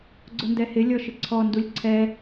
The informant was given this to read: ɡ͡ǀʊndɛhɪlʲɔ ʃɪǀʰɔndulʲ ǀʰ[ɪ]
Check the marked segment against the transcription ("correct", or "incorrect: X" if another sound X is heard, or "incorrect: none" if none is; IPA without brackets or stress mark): incorrect: ɛ